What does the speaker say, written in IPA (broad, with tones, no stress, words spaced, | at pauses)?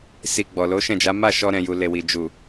si˨ ɡ͡bɔ˨lo˨˦ʃɛ̃˦˨d͡ʒa˨˦ ma˦˨ʃɔ˧ɾɛ̃˨ju˨ le˨wi˨d͡ʒu˨